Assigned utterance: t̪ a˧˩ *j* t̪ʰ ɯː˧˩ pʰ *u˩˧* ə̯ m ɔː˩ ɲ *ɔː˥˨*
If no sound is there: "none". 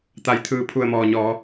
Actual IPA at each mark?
j, u˧˩, ɔː˩˧

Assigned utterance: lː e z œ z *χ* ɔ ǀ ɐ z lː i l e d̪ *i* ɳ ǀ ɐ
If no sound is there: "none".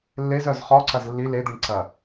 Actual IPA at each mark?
χ, i

